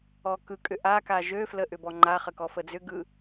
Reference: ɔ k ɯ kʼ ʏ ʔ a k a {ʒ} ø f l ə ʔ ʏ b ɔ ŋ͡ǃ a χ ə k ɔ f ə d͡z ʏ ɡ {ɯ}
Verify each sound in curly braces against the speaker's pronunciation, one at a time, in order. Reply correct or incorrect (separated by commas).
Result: correct, correct